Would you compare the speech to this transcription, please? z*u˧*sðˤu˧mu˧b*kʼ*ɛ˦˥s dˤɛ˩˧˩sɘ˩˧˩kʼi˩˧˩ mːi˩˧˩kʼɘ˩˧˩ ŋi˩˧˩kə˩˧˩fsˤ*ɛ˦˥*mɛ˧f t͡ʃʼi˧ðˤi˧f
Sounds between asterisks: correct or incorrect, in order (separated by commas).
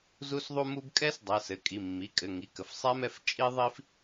correct, correct, correct